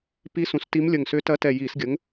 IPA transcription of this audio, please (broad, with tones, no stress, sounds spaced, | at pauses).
p i˧˥ s ũ˩˧ s t i˧˥ m lʲ ə˨˩ ŋ s ʏ˧˥ t ɐ˧˥ t ɛ˨˩ j i˧˩˧ s ɡʲ ə˩˥ ŋ